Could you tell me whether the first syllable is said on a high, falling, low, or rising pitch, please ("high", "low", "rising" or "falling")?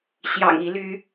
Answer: low